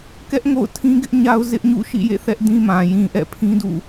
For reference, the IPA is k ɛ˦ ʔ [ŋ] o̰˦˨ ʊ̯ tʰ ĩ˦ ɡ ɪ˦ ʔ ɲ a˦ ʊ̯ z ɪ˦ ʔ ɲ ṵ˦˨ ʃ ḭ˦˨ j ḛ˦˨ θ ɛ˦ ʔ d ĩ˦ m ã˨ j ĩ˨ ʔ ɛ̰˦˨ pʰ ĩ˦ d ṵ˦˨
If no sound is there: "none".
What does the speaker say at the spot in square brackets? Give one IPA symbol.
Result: ŋ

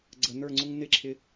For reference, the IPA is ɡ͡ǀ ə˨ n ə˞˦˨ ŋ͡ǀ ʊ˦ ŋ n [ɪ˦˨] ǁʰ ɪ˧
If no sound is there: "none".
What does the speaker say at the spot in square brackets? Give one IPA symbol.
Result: ɪ˦˨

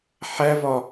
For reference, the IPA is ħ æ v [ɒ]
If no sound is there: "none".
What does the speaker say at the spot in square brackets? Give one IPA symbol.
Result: ɒ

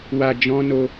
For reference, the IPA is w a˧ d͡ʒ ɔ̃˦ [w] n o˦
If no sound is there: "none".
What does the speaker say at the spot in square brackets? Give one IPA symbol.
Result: none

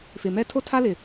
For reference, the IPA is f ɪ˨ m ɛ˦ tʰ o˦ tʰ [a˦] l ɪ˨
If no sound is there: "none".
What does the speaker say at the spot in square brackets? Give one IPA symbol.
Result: a˦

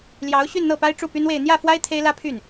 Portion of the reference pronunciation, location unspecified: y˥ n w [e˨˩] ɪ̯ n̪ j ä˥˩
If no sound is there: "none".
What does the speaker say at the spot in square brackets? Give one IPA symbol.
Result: e˥˧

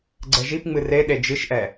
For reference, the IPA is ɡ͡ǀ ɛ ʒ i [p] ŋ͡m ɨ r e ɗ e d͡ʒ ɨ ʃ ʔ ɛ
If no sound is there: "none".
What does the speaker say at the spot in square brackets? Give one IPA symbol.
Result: p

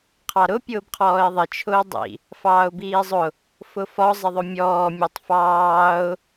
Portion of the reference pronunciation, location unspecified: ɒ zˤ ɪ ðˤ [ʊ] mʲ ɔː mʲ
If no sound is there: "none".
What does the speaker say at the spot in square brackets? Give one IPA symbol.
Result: ʊ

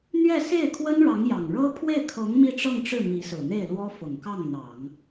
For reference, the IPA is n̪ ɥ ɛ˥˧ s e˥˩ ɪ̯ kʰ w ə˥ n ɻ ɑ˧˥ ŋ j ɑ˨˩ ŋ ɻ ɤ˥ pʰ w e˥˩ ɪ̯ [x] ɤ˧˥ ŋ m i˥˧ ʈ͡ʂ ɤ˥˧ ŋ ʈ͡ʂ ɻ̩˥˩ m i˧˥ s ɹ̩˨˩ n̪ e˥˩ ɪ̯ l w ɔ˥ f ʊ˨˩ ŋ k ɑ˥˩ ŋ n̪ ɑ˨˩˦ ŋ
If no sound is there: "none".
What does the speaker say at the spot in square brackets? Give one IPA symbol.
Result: kʰ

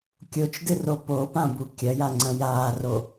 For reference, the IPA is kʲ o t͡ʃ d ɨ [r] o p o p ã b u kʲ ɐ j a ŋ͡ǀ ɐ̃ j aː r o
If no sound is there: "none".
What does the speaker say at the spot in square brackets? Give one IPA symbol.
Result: r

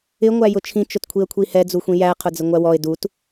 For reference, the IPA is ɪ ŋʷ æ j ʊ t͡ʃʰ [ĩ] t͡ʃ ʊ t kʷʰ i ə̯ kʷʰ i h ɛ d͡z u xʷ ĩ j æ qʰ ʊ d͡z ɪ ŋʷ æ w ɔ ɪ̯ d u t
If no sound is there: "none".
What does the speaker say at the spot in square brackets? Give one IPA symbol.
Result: ĩ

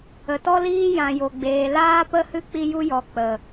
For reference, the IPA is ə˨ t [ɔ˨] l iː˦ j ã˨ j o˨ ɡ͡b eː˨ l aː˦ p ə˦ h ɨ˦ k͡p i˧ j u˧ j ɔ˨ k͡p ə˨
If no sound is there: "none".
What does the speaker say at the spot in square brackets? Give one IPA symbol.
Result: ɔ˧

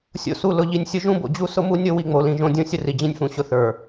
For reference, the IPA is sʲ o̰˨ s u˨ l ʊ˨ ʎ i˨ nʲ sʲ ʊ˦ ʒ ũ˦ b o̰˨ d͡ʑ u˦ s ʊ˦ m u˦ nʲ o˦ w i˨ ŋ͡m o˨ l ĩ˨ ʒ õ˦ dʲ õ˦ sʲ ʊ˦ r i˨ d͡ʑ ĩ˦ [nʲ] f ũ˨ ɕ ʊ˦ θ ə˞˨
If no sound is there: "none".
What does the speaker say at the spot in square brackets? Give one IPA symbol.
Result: nʲ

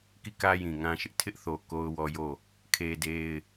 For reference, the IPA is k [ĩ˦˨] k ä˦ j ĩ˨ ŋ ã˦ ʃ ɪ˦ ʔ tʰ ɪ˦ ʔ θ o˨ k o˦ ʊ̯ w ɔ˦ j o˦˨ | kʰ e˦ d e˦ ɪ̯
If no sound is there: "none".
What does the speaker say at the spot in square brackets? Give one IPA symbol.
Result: i˦˨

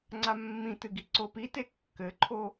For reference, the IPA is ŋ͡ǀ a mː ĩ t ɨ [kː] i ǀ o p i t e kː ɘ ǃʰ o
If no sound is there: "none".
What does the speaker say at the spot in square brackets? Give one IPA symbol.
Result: ɡ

